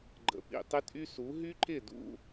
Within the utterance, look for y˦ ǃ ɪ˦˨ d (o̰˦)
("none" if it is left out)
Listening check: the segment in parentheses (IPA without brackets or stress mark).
ṵ˦